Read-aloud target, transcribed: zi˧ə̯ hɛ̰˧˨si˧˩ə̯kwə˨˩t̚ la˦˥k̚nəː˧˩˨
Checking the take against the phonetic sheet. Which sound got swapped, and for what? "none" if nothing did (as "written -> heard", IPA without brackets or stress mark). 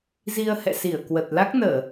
none